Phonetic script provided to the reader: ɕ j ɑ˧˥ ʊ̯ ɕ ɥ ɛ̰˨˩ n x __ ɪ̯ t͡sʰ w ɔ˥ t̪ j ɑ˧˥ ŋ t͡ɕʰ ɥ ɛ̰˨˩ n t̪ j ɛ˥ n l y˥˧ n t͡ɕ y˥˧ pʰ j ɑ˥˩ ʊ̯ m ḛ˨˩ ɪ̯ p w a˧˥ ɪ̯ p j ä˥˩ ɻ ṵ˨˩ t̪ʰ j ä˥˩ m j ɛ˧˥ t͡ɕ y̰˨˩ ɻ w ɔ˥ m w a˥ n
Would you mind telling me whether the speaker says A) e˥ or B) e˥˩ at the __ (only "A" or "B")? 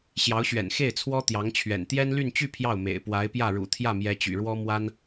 B